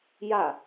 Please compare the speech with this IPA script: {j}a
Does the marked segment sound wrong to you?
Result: no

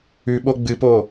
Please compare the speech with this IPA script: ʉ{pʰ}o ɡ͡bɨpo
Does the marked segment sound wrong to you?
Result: yes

